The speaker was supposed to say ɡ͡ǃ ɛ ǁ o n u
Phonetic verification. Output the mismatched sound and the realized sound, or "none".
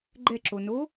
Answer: u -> o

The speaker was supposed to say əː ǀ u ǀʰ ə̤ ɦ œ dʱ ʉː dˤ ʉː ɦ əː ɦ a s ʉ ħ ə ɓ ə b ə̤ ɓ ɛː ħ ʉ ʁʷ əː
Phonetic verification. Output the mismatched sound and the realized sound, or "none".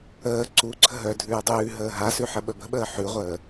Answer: ɛː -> əː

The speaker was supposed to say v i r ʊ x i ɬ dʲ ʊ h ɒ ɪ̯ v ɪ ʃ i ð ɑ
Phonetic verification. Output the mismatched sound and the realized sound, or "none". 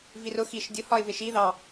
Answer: ɬ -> ʃ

